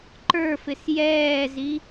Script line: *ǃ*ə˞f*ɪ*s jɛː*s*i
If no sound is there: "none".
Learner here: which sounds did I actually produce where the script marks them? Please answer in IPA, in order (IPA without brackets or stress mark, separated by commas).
ǃ, ɪ, z